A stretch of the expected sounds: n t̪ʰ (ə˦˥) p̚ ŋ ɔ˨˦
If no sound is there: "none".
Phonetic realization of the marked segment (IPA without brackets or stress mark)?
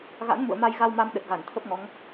ə˦˥